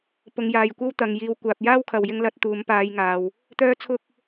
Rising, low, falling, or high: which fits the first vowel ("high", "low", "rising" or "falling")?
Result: low